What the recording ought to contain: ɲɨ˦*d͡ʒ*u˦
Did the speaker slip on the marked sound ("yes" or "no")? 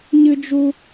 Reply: no